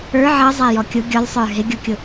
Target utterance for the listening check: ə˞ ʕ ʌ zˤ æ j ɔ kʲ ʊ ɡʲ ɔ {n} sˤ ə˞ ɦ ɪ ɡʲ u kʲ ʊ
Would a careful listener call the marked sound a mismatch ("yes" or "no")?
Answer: yes